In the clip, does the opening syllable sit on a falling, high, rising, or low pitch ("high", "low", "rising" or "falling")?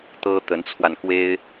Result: high